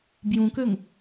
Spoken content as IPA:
b j ũ k ø ŋ

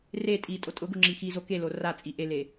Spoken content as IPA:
r e tʼ i tʼ o tʼ ʊ ɡ ʊ ŋ͡ǁ i x i z o k e l o r a t͡sʼ i ʔ e l e

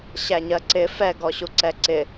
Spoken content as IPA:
ɕ æ ɲ ɜ ǀ ɪ f ɛ ɡ ɔ ɕ u ǀ ɛ ǀ ɪ

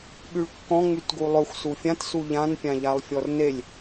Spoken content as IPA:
ɓ y ɭ kː ɔ̃ ŋ͡m y t ɡ u lˠ ɵ xʷ s u fʲ ã t s u ʎ ã n pʲ ã ʎ a lˠ fʲ ɔ r n e lʲ

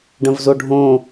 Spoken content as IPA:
ɖ ə̃ v z o ɖʱ õ

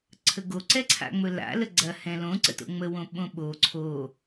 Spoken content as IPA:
ǀʰ ə ɡ o ǀ ɛ ǀʰ a̰ ŋ͡m ɵ l a̰ l ə ɡ͡ǀ ɐ h ɛ̃ l õ ǀ ə̰ t o̰ ŋ͡m ə w õ ɓ õ ɓ o ǀʰ o

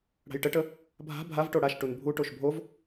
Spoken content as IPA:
ɽ a̤ j ʈ ə ʈ ə | bʱ a̤ bʱ a v ʈ o ɽ a ʃ ʈ u n bʱ u ʈ o ʃ bʱ o v

